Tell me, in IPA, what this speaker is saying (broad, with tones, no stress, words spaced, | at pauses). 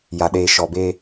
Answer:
ja˨ɗeː˨ʃɔ˨be˦